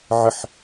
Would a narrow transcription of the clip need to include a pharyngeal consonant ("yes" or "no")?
yes